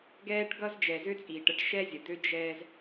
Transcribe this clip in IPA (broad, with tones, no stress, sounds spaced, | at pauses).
ɡ ɛː˦ ʈ ɡ ʌ˦ z d͡ʒ ɛ˨ z ø˦ t͡sʼ iː˨ ʈ ə˦ ʈ ʃ ɛ˦ zʲ ə˨ d̪ ø˦ d͡ʒ ɛː˦ z